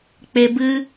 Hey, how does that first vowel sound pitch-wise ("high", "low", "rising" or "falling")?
high